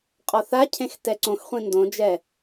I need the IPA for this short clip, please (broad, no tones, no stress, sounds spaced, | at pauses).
qʼ ɔ θ a cʰ ẽ x t ɛ ǀ õ x χʷ ĩ n d õ d͡ʒ ɛ